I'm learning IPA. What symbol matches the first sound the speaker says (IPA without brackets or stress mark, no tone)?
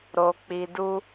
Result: ɾ